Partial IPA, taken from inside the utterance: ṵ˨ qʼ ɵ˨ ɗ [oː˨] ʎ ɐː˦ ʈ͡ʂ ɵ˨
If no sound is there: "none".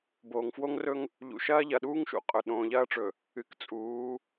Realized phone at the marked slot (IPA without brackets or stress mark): õː˨